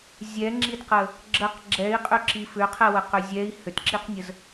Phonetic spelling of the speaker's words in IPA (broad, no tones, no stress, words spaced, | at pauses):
zʲɛŋ͡ǁidqə | ɡ͡ǁəq ɡ͡ǁɛi̯qʼʏǁi fʏqʰɛwəqʏ zʲɛi̯ hʏtǁiqnʲəz